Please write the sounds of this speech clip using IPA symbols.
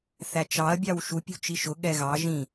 θæt͡ʃɑɐ̯bʲɑw ʃupʲṳ t͡ʃiʃʊ ɠɛɣɑ ʒĩ

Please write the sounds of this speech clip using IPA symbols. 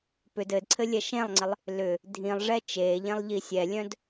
pʏ dɘdǀʰɘ lʲɛʃẽlˠŋ͡ǀɪlˠ | lʏ | dʱĩlˠʐɛ t͡ʃeʎẽlˠ ʎisʲɛlʲœ̃d

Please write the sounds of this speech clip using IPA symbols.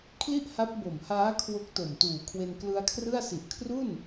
kʰli˥˩ʔha˦˥p̚bo˨˩mhaː˦˥ kʰwo˦˥k̚to˨˩mtuː˨˩ kʰwe˧nklɯ˧a̯kʰrɯ˥˩a̯ si˨˩ʔkʰru˥˩n

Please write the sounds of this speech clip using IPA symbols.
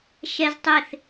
ʃɛz tˤɪθ

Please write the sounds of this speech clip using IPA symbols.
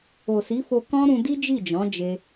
o˨si˨˦fo˧kɔ̃˦ ɾũ˧di˦d͡ʒi˦˨ d͡ʒɔ̃˨˦d͡ʒe˧

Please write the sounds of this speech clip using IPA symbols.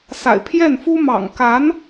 sa̰˨˩ɪ̯pʰjɛ˥˩nfu˥ mɑ̰˨˩ŋka˧˥n

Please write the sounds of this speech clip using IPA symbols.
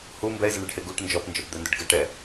hu mbɛɪ̯zəɳeɖhe ɡuʈ nd͡ʒɔpnd͡ʒɔpd̪ɛndʏɖ ɡəʈɛ

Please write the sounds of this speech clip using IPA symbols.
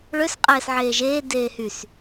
ɭøs qʼɛːsʕeːʒeː deːhys

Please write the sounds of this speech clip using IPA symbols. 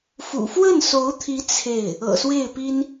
fṵ˨˩fwə˥˩nso˧˥ʊ̯t̪ʰi˧˥ t͡sʰe˥˩ɪ̯ | ɤ̰˨˩swe˥˩ɪ̯pi˥n

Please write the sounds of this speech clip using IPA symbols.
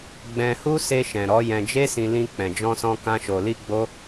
ɡ͡bɛ̃˧hu˦ se˧ʃɛ̃˨ ɾɔ˨˦ jɛ̃˧d͡ʒe˦sĩ˧ lĩ˧ k͡pɛ̃˨d͡ʒɔ̃˧sɔ̃˧ kã˦ʃo˧li˦ɡ͡bo˦

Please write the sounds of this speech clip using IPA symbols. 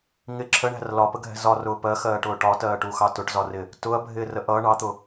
ŋɪ ǁʰəɳæ̤r lɒpəɡʱɛ̤ zɒrʊː pɜxɜːʈʊː ʈɒtɜːʈuxɑ tʊʈzɒrɪ | tʊɐ̯bʱɪːrə ʔʌː ɳɑt̪ʊ

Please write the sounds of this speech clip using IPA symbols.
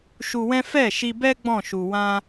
ʃu˧wɛ̃˦ fɛ˦˨ ʃi˧bɛ˦ ɡ͡bɔ̃˦˨ʃu˨ wã˧

